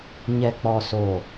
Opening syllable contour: low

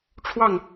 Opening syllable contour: falling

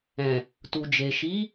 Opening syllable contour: low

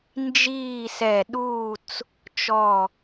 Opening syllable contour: falling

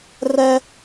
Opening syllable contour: high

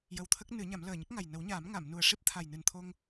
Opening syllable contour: low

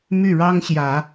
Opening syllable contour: falling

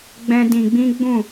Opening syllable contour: high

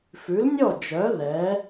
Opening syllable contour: rising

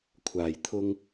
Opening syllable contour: low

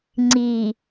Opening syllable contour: low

